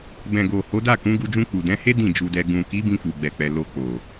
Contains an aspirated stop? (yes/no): no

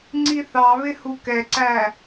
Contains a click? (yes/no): yes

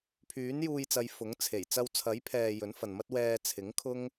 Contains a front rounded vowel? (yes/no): yes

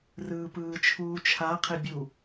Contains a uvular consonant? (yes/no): yes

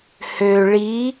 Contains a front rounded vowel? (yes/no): yes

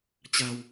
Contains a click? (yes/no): no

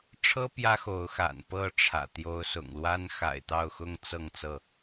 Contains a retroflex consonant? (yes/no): yes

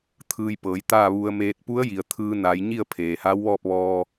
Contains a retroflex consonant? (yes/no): no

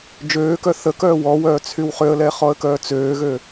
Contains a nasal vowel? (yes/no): no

